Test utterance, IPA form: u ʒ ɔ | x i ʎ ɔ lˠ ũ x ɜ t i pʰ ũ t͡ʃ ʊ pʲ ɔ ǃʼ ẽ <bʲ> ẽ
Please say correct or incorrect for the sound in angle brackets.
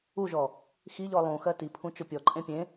incorrect